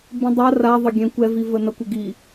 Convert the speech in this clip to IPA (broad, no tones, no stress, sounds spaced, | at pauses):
b ĩ dˤ a r a ðˤ ə ɡʲ ɛ̃ kʷ ɛ v i v ə n ʌ kʷ ə ɡ i